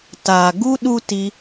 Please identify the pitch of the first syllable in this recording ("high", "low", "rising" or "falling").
low